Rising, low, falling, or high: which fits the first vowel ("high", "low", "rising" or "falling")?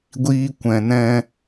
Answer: high